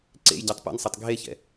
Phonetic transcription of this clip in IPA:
ǀ ḛ j ɟ a tˤ p ɛ̰ n sˤ a tˤ ɡʱ e ç ɛ̰

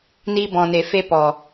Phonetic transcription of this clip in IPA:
n i˧ b ɔ̃˨ n e˨ f e˦ p ɔ˨

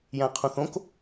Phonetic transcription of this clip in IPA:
j æ̃ qʰ ũ θ õ k

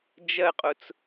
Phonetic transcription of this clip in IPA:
d͡ʒ ɜ qʼ ʊ t͡s

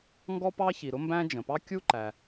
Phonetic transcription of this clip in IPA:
ŋ ɡ ɔ˥ p ɑ˥ ç i˩ ɾ ʊ˥ m b æ̃˥ d͡ʒ ə̃˩ p ɑ˥ kʲ u˥ ǃ æ˩

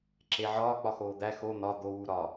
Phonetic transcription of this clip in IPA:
ǁ e ʕ ɒː k͡p ɒ x oː d̪ æ x o n̪ ɒ d̪ o w u ɾ ɒ

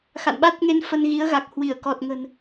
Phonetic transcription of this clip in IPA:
x a̰˧˨ n ɓ a˦˥ t̚ ŋ e˧ n f ə˧ n ɣ i˨˦ ə̯ ɣ a˨˩ k̚ h w i˧˩ ə̯ k ɔ˨˩ t̚ ŋ ə̤˨˩ n

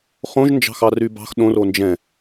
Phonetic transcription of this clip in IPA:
χ õ ʒ n d͡ʒ ɑ̤ x ɑ r y b ɑ̤ x ɗ õ r o n d͡ʒ ɛ̃

